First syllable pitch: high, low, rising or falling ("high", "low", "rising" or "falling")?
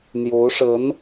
rising